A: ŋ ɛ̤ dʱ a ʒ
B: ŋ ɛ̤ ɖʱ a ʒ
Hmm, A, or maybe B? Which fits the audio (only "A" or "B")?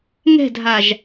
A